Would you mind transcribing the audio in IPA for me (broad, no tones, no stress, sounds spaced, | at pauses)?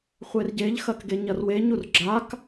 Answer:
χʷ e r ɟ e ʎ x ɐ k ɡ e ɲ ɐ r w e ɲ u r ɡ͡ǁ a k